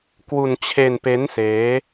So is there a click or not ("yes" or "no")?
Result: no